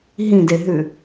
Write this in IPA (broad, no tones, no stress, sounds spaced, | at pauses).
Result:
ɦ ĩ d e ɦ ʉ